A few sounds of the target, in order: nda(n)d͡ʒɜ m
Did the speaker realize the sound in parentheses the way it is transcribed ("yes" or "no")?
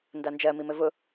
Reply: yes